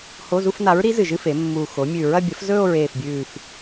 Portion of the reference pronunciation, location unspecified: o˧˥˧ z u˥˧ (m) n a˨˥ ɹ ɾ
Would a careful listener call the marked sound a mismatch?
yes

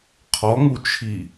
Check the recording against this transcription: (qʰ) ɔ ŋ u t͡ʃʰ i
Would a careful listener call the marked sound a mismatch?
no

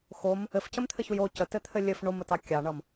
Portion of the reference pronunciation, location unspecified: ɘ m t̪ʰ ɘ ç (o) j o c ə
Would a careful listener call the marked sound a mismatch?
yes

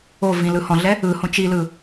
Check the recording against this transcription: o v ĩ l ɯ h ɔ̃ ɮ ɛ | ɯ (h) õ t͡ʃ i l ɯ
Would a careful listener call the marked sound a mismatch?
no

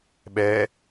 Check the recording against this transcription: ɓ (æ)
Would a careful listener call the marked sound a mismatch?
yes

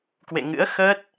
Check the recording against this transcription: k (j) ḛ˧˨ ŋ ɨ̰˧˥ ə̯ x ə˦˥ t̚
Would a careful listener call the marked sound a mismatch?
yes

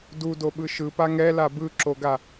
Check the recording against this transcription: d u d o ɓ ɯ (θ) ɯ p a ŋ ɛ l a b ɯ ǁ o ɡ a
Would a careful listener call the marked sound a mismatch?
yes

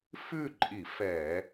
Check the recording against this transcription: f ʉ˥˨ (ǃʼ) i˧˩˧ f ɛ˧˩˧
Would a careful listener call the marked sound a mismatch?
no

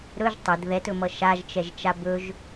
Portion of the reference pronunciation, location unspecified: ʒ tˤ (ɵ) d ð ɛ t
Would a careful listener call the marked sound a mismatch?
yes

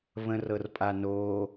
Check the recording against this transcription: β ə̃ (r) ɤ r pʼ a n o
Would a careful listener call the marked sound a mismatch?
no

